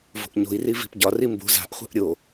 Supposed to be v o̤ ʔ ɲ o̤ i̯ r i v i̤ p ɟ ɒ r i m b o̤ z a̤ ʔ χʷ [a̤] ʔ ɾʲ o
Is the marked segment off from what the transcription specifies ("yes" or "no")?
no